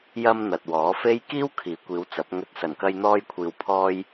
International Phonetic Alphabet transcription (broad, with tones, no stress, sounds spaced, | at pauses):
j ɐ˧ m n̪ ɐ˨ t̚ w ɔː˨˥ f e˥ j k iː˥ w kʰ iː˨˥ kʷ iː˨˧ w t͡s ɐ˨˥ p̚ ŋ ɵ˨ t̚ s ɐ˨˩ n k ɐ˧ j n̪ ɔː˧ j kʷʰ iː˨ w pʰ ɔː˧ j